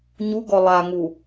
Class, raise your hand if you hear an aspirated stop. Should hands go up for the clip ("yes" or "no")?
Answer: no